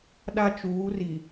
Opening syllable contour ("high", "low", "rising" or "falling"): high